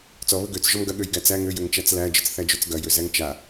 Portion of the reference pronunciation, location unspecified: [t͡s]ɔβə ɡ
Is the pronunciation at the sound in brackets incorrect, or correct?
correct